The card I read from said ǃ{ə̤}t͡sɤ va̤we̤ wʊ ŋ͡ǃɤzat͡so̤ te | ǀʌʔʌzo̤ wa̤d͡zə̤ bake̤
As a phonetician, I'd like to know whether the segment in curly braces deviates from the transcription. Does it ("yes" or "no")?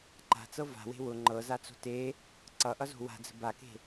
yes